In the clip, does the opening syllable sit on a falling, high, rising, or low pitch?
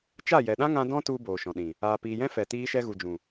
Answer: falling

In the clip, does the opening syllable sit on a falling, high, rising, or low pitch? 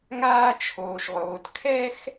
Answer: high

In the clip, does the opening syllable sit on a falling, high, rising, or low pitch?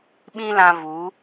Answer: high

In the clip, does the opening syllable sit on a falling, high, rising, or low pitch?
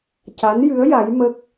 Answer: rising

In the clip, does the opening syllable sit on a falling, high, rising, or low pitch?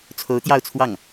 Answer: rising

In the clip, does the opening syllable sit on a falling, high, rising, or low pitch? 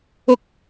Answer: high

